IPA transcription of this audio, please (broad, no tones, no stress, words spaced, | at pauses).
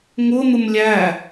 ŋʊn̪ʊm lʲæ